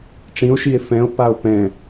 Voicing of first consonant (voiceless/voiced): voiceless